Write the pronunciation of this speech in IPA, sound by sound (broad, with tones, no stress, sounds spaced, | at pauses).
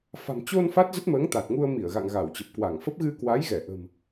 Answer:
f a̤˨˩ m t͡ɕ o˧ n f a˦˥ t̚ z ə˦˥ t̚ m əː˨˦ ŋ t̪ a˨˩ t̚ ŋ u˧ ə̯ m i˧˩ ə̯ ɣ a̰˧˨ ŋ ɣ a˧˩ w t͡ɕ ə˨˩ p̚ k w a˧˩ ŋ f ə˦˥ p̚ ɣ ɨ˧ k w a˨˦ j ɣ ɛ˧˩ ʔ ə̤˨˩ m